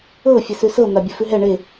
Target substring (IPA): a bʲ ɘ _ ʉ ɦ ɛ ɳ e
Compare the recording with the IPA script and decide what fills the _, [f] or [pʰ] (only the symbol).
f